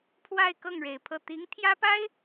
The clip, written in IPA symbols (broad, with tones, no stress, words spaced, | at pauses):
pʰwa˥˧ɪ̯kɤ˥˩ŋ ɻe˨˩ɪ̯pʰɤ˥˩ t̪i˧˥ŋt̪ʰjä˥pa˥ɪ̯